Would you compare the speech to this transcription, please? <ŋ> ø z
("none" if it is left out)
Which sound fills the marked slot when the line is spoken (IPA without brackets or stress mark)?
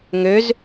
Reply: ŋ